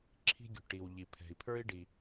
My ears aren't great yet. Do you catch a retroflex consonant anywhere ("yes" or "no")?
yes